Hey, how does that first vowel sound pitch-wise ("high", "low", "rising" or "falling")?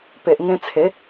low